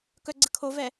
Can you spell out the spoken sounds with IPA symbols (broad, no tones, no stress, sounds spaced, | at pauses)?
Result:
k œ ɡ͡ǀ ə kʰ o v ɛ